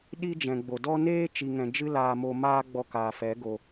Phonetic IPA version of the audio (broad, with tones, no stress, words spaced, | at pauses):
ɗi˦ d͡ʒɛ̃˨ɡ͡bo˨dɔ˦ neː˦ t͡ʃi˨ŋɛ̃˨ d͡ʒɨ˦laː˧ mo˧maː˦ɡ͡bɔ˧ kaː˨fɛ˨˦ ɡo˧